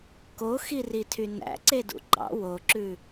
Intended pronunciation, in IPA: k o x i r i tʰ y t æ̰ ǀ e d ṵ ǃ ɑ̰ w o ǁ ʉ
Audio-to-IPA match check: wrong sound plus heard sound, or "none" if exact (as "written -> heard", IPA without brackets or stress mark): t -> n